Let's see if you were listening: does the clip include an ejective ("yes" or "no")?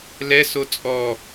yes